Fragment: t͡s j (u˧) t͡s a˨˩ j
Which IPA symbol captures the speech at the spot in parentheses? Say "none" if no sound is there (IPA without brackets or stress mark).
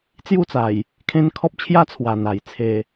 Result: u˥˧